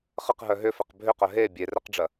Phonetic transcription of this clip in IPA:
χəqɦœ ɦʏfɛq bʱʏqœ ɦe bʲerɛqɖ͡ʐɐ

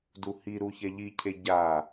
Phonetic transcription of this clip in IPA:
duhi ɾuçɛʎicʰe ɟa

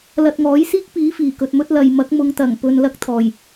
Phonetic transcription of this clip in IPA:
lɐ˧t̚ŋɔː˨˥jsiː˥k̚piː˨˥ fiː˨˩kɵ˨t̚mɵ˥t̚ lɐ˨jmɐ˨˥k̚mʊ˨˧ŋt̪ɐ˨˩ŋ pɵ˧n lɐ˥k̚t̪ʰɔː˨˩j

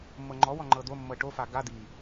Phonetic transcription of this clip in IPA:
mːɤŋ͡ǃɔwɔ ŋ͡ǃɤd̪omːɤ ʈofa ɡa d̪i

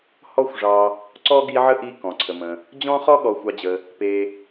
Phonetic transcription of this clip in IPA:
hɔ˦xʷʐɑ˨ | ǀɔ˥ɡi˦ʕə˥ʔi˦ kɔ̃˩ǀʰə˩mə̃˩ | d͡ʑɔ̃˥χɔ˥ ɠɔ˨xʷɑ˨d͡ʑə˩ | pe˨

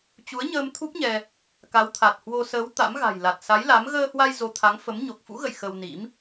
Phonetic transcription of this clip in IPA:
t͡ɕu˨˦ə̯ɲəː˧m t̪ʰu˦˥p̚ɲɛ˧ | ka˨˦wt̪ʰa˨˩t̚hwo˧ səː˨˦w t̪a̰˧˥mɣa̤˨˩jla˨˩t̚ sa˨˦jla˨˦m ɣəː˧hwa˧j zo˨˦t̪ʰa˨˦ŋfə˨˦m ɲo˨˩k̚fṵ˧˥ɣə̰˧˨j xə˧wnḭ˧˥m

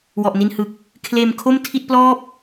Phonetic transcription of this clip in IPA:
wɔ˨˩ʔni˧nhɯ˨˩k̚ | kʰleː˧mkʰo˥˩mtʰi˥˩t̚ plɔː˥˩p̚

